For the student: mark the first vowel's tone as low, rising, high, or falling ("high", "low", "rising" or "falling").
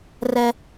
high